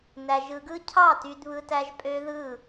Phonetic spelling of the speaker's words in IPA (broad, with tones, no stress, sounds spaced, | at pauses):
n æ˧ ʒ ɯ˧ ɡ ɯ˦ cʰ ɑ˦˨ t y˧ d β ɯ˧ t æ˧ ʒ pʼ ø˦ ð ɯ˦˨